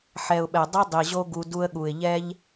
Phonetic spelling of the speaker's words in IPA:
ħ ɛ˨ ʊ̯ ɓ ɛ˨ dˤ i˦ dˤ i˨ ʑ o˦ ɡ u˧ d u˧ ə̯ ɠ u˨ ɪ̯ ʎ ɛ˦ ʎ

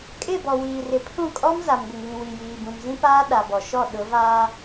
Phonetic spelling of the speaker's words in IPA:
kʼ ɪ˦˨ b ɔ˨ w iː˨ r ɪ˨ pʰ ũ˦˨ kʼ ɔ˦ m z a˨ m ɡʷ ɪ˨ ŋ β ĩ˨ w i˨ j iː˨ b ũ˨ m z ĩ˦ p aː˦ ɗ a˨ b ɔ˨ ʃ ɔ˦˨ ɗ ʊ˨˦ v aː˦

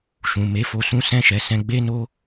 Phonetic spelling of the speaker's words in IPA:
ʃ ũ˨ m e˨˦ f o˧ s ũ˦ s ɛ̃˦˨ ʃ ɛ˨ s ɛ̃˧ ɡ͡b e˦ n o˦

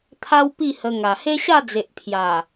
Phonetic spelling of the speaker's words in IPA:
t̪ʰ a˦ w p i˥˧ h ə˧ ŋ a˨˩ h e˦ ɕ a˥˧ d͡z e˨ ʔ pʰ j a˨˩

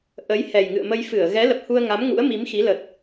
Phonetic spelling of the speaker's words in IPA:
ʔ ə˨˦ j h ɛ˨˩ j ŋ ɨ̰˧˨ ə̯ m ə˧ j f ɨ˧˩ ə̯ ɣ ɛ˨˦ l ə˨˩ p̚ h u˧ ə̯ ŋ a˨˦ m ŋ ṵ˧˥ ə̯ m i˨˦ m x i˨˦ l ə˨˩ t̚

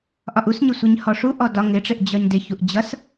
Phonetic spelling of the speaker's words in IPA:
ʔ ɒ ʔ u s ɲ ɪ sʷ i ɲ h ɔ ʂ u ʔ ɔ d ɒ ŋ ɪ ʈ͡ʂ ɪ ʔ d͡ʑ ɒ ɲ d ɪ ç u ʔ d͡ʑ ʌ s

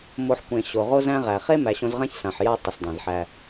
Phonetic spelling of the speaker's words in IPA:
m o˧ ħ kʷ ẽ˨ ɕ o˨ ʁ o˦ z æ̃˦ ʁ æ˨ χ e˦ m æ˨ ɕ õ˧ z ʁ ã˦ ç s ã˨ ħ j a˦ tˤ ə˨ s dˤ ã˨ z ħ æ˧

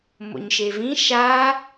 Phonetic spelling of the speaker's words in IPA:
m o̰ ɲ ʃ e v ĩ ʃ aː

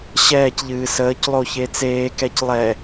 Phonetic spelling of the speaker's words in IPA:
ɕ ɛː c ʎ ɨː s əː c lˠ o ç e t͡s eː k ɛ c lˠ ɛ

